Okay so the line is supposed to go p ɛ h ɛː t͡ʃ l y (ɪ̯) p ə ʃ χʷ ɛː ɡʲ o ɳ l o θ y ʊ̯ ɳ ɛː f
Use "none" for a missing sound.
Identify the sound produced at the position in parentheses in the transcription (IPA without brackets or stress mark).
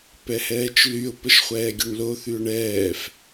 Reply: ʊ̯